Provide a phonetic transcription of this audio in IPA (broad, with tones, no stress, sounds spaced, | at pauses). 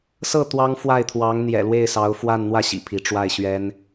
s ɤ˥˩ t̪ w ɑ˥ ŋ f w a˥˩ ɪ̯ t̪ʰ w ɑ˧˥ ŋ n̪ j ɛ̰˨˩ l w e˥˩ ɪ̯ s ɑ˧˥ ʊ̯ f w a˥˧ n n̪ w ä˥˩ ɕ ḭ˨˩ pʰ i˧˥ ʈ͡ʂ w a˥˩ ɪ̯ ɕ ɥ ɛ˥ n